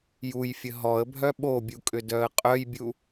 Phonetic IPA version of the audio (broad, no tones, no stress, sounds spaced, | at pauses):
j u j fʲ ə ɦ ɔ ə̯ bʱ œ ɓ o bʲ u kʼ ʏ d œ ə̯ qʼ œ j bʲ u